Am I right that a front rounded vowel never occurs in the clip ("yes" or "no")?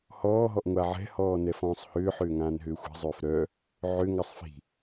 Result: no